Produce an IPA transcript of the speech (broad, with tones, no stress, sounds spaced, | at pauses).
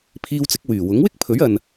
pʰ iː˧ w t͡s ɪ˨˥ k̚ w yː˨˩ w ʊ˨˥ ŋ w ɪ˥ k̚ pʰ ɵ˨˥ ɥ ɐ˨ n